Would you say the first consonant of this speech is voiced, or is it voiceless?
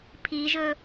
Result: voiceless